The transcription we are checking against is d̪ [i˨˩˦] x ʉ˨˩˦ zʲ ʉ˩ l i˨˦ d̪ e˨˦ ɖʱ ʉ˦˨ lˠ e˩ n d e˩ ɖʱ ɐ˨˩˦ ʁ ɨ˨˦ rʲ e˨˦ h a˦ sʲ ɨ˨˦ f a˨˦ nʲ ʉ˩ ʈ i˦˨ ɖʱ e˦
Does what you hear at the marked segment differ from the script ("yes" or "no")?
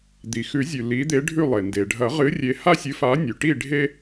yes